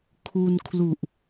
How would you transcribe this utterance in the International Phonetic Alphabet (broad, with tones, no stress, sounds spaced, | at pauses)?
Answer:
kʰ u˧ n kʰ l u˨˩ ʔ